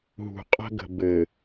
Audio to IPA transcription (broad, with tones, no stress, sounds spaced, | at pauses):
ɦ ṳ˨ qʼ ə̤˦ ɡ ə̤˨ b ɘ˨